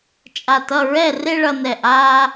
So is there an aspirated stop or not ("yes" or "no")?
no